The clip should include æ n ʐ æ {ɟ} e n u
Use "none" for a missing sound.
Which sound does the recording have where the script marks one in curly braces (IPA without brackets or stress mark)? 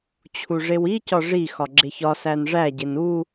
ɟ